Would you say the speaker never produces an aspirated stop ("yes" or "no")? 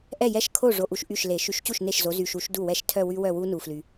no